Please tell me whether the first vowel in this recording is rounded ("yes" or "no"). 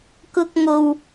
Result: yes